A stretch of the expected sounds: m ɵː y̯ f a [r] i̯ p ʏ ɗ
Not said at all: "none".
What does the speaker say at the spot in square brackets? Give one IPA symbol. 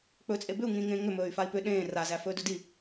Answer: none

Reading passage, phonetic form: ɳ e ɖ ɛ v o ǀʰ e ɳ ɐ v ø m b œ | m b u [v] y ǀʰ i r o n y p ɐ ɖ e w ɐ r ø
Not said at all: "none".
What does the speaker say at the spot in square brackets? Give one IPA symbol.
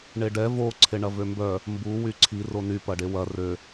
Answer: w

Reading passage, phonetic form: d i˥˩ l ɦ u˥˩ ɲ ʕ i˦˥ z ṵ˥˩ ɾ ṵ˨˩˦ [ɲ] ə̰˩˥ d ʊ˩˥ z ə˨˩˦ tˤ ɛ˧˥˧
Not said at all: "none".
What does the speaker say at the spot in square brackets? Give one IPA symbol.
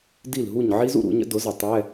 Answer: ɲ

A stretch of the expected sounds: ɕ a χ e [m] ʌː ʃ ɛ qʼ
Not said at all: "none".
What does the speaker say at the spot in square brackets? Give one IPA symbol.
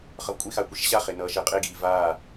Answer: n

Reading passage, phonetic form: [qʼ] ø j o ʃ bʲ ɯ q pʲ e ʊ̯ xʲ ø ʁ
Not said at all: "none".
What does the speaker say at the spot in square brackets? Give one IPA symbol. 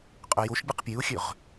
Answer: qʼ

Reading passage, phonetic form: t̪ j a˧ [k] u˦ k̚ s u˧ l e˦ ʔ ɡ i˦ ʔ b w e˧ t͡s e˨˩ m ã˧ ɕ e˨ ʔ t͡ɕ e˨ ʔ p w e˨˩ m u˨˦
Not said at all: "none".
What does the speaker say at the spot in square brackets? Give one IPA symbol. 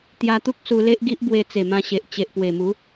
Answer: t̪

